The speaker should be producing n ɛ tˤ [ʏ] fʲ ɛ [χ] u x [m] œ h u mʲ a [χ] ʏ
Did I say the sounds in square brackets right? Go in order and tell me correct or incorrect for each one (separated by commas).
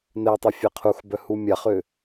correct, incorrect, incorrect, correct